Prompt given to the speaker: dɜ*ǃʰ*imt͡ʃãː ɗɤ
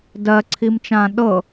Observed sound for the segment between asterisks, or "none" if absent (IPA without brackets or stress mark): ǀʰ